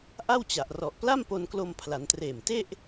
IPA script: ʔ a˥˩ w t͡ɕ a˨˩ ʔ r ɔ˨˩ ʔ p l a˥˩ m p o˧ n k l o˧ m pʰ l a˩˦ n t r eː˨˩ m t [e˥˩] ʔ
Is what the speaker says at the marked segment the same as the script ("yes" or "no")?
yes